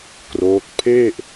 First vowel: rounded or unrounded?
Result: rounded